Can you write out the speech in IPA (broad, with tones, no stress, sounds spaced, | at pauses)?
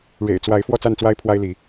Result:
ɻ ḛ˨˩ ɪ̯ t͡s w a˨˦ ɪ̯ f w ɔ˥˨ t͡s a˥˨ n t͡s w a˦ ɪ̯ pʰ w a˦ ɪ̯ l i˨˦